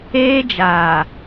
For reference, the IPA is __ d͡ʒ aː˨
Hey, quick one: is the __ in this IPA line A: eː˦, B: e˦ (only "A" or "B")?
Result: A